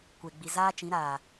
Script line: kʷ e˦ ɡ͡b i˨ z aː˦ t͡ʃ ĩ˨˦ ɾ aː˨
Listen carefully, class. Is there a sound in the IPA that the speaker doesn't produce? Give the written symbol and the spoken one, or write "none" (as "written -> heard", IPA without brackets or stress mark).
e˦ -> e˨